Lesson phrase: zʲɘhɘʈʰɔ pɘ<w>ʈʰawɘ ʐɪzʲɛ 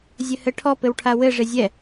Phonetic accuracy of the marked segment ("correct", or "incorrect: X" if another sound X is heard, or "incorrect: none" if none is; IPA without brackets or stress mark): correct